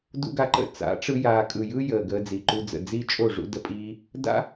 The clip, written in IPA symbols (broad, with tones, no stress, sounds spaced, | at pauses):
d ṵ˦ ɡ a˧ ǃ ə̰˦˨ t͡s a̰˨˦ ʈ͡ʂ ɯ˧ j aː˨ kʼ ɯ˨ j ɯː˦ j əː˨ ɡ əː˧ d͡z i˨ ǃ u˧ d͡z ə̰˨ d͡z iː˦ t͡ʃʼ o˦˨ ʐ ṵ˦ d ə˧ pʼ iː˦ | d a̰˦